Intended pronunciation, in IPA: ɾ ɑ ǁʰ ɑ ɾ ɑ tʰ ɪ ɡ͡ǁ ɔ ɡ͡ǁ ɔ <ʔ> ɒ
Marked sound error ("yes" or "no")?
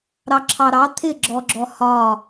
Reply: yes